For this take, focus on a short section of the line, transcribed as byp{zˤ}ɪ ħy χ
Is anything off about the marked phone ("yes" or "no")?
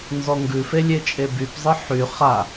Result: no